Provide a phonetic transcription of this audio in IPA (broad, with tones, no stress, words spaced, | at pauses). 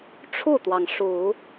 ʈ͡ʂʰu˥˩t̪wɑ˩ŋ ʂu˨˩˦